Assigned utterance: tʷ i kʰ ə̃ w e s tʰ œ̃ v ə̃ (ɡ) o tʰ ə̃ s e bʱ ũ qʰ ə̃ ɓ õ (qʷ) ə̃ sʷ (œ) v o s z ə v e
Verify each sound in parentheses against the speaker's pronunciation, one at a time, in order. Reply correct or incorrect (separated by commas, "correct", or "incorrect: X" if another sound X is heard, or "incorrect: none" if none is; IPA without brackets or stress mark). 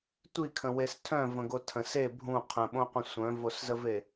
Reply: correct, correct, incorrect: œ̃